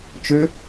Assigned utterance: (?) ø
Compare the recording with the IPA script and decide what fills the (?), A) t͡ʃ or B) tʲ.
A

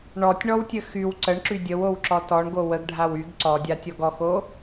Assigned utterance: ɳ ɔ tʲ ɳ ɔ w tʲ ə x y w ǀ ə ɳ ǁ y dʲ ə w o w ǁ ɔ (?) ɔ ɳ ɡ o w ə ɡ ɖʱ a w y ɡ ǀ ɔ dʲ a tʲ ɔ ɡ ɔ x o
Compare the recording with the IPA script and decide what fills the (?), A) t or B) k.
A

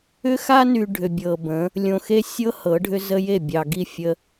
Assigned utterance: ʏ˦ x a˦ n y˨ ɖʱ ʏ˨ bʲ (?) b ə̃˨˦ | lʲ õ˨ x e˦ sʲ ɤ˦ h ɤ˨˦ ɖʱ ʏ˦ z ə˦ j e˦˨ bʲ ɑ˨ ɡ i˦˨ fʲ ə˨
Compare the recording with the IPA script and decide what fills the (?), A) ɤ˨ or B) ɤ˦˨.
A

